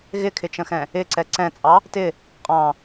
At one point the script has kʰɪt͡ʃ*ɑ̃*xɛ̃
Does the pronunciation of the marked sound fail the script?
yes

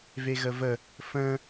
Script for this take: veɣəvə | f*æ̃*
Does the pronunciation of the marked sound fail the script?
yes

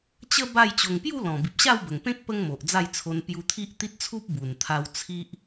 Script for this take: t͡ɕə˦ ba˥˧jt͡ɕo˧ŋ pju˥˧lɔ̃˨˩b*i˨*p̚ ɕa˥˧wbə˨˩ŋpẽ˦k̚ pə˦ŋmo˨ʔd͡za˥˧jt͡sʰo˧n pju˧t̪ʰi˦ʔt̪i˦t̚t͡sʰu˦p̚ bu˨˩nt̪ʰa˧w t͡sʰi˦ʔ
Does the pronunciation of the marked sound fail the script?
no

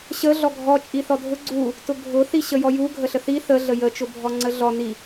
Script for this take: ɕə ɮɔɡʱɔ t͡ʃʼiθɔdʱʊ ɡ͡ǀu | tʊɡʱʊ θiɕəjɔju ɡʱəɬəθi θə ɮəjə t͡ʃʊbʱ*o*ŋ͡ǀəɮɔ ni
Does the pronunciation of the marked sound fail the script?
yes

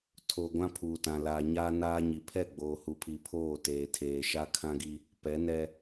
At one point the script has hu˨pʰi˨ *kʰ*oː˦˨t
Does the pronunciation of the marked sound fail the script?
yes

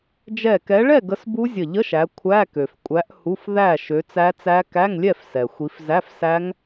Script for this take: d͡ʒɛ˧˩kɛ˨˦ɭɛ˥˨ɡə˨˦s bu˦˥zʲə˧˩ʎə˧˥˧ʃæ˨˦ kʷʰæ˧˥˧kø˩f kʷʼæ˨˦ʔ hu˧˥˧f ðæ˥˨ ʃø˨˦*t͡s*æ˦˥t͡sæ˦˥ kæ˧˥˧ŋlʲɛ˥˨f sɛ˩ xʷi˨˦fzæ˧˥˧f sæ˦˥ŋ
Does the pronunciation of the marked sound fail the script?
no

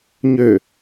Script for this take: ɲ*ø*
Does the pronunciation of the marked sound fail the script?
no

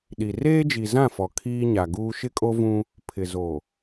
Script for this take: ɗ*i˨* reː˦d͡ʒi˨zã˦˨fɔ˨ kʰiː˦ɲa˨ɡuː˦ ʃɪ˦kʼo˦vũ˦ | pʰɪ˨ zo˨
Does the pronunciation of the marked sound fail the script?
no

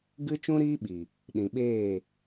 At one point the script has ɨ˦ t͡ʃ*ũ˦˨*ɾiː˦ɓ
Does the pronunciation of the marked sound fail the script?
yes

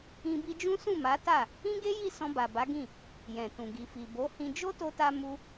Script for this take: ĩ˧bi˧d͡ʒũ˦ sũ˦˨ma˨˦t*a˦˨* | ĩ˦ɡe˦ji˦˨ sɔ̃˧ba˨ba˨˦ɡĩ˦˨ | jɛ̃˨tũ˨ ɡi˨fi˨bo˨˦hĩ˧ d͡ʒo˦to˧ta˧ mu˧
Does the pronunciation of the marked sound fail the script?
no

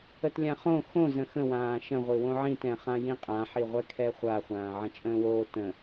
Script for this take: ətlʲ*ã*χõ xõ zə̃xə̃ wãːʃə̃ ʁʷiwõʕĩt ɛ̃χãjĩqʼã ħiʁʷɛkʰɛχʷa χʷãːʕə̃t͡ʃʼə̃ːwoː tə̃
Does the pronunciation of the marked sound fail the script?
no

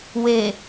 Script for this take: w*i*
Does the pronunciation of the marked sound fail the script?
yes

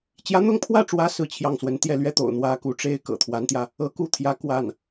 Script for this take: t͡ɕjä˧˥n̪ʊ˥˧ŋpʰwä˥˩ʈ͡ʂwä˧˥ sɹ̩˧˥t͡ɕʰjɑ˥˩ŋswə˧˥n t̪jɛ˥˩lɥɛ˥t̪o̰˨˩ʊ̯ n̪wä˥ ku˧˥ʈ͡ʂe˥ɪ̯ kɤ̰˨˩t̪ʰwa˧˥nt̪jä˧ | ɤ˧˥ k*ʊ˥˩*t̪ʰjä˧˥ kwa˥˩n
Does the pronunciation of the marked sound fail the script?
yes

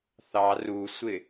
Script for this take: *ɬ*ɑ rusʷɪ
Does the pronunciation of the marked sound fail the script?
yes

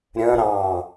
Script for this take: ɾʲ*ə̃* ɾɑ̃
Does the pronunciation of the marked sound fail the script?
no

